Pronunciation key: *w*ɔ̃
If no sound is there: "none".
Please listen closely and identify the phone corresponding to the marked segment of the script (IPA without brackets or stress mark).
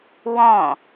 w